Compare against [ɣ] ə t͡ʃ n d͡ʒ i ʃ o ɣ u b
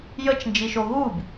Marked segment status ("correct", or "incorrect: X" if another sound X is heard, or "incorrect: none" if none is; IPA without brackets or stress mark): incorrect: j